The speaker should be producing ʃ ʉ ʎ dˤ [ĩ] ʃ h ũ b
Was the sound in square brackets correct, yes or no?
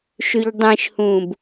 yes